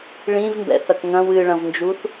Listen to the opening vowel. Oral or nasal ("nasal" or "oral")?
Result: nasal